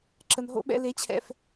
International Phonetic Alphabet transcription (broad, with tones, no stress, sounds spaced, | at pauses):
ǁ ə˨ n ɦ o̰˦ ɓ ɛ̰˦ l e˨˦ t͡ɕʰ ɛ̰˨ f